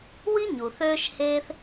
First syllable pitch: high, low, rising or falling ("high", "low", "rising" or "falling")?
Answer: high